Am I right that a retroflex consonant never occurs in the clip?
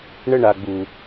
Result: no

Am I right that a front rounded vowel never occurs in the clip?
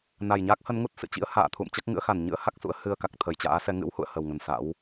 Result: yes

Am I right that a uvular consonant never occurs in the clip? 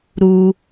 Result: yes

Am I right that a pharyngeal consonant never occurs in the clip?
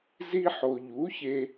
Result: no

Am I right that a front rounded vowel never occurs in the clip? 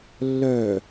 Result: no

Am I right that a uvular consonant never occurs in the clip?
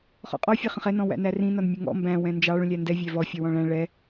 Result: no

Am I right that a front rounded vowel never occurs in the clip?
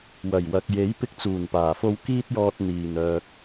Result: no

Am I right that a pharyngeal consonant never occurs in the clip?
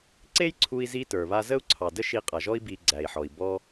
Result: no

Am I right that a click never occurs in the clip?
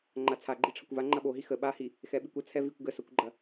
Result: no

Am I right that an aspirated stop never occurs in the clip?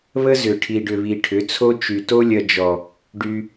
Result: no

